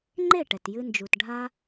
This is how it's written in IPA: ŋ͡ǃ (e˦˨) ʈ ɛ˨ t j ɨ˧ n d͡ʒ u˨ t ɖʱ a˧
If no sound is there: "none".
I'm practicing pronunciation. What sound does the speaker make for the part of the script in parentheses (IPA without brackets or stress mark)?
e˦˨